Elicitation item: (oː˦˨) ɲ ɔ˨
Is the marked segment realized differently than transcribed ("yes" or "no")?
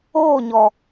no